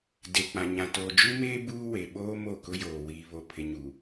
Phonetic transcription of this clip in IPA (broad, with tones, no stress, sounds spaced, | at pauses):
d e˨ k͡p ã˨ ɲ ã˨ t oː˨ d͡ʒ u˦ m eː˦ b uː˦ w e˨ ɓ oː˦ m o˦˨ k ʊ˦ j oː˨ w iː˨ β o˨ pʰ ɪ˨ ɲ u˨